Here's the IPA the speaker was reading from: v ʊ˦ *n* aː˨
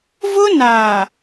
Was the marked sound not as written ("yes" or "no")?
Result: no